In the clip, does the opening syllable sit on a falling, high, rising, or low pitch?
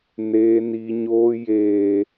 high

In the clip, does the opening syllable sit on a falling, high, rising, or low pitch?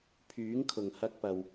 rising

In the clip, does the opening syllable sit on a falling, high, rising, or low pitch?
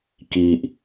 low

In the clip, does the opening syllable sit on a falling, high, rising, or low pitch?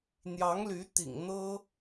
rising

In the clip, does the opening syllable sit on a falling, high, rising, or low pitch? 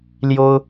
high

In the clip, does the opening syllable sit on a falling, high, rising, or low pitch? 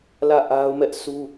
falling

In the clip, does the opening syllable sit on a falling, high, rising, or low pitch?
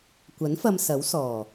rising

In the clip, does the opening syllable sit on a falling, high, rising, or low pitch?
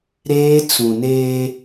high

